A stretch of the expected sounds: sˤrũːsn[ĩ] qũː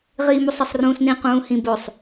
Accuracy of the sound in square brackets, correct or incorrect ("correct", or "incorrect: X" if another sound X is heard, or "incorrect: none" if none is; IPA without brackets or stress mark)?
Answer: correct